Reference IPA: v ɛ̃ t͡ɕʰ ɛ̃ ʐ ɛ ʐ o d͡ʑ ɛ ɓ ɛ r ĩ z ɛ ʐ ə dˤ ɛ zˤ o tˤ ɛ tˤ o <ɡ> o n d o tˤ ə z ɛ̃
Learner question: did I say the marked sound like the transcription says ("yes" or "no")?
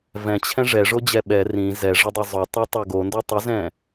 yes